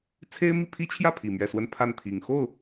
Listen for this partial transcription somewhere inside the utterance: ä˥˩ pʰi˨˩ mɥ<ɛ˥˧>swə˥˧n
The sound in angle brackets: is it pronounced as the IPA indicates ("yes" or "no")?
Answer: yes